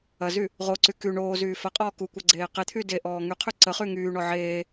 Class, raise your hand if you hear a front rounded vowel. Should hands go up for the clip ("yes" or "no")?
yes